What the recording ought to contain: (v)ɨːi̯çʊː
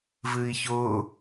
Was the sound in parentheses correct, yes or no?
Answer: yes